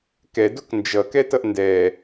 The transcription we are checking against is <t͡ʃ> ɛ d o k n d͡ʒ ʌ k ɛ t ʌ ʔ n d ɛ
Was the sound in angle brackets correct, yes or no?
no